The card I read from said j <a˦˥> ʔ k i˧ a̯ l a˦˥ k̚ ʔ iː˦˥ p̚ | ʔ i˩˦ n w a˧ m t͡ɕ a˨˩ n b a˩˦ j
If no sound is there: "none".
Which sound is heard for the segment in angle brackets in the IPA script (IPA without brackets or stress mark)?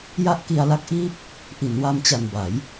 a˥˩